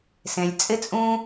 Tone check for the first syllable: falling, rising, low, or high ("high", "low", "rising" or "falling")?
low